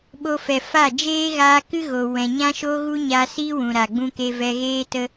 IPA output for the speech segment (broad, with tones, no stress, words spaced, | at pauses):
ɓo˧fɛ˨ fa˦˨ d͡ʒeː˦ɣaː˧kɨ˦ ɣo˨ wɛ̃˨ɲã˦ʃo˦ɣu˦ ɲa˧si˦ wũ˨ɾa˨ ɡ͡bũ˧ke˧ vɛ˧ɣeː˦tə˦